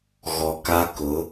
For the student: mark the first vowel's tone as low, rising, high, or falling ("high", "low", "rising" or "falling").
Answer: low